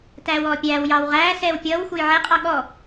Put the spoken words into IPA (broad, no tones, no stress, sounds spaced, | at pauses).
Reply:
t æː w ɔː pʲ æː w j ɑː w ʁ æː s ɛː w pʲ ʌː w xʷ ʌ j ʕ ɛ qʼ ɑ ɠ ɔ